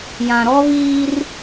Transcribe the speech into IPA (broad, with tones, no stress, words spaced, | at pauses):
jã˨ɾɔ˦βiː˦r